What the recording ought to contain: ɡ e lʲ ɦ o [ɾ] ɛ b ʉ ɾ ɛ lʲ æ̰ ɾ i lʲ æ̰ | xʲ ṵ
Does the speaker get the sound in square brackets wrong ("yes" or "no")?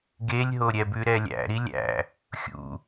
yes